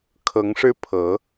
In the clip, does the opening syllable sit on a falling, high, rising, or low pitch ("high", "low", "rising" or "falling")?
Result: rising